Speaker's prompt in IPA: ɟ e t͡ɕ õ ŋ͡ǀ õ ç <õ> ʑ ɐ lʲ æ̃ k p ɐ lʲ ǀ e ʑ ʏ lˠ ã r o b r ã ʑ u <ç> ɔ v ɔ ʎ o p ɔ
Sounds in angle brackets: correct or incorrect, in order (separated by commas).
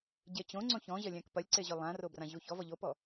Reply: incorrect, correct